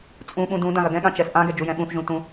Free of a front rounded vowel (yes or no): yes